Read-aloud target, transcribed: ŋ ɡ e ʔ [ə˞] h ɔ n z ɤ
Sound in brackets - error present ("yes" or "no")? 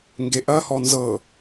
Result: yes